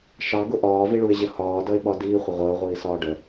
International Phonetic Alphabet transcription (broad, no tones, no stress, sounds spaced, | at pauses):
ʃ ɑ ɡ ʊ ʔ ɒː v i ɭ u ɪ̯ ʑ ə h ɒː d ʌ ɪ̯ ɓ ɒ d iː χʷ ə ʁʷ əː ʁʷ iː s ɒː ɖ ə